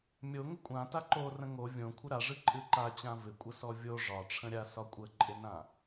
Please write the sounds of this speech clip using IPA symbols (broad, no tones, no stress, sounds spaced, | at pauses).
mʲ o ŋ ɪ kʷʼ ã t a ǃ o r ə̃ ŋ o vʲ õ kʷʰ ɪ ɾ a ʐ ɨ ǃʼ ɨ ǃ a t͡ɕ ã v ɪ kʷʼ ə s ɔ vʲ o ʐ ɒ ʈ͡ʂʰ ə̃ ɾʲ a s ɒ kʷʼ ə ǃʼ ɪ n ã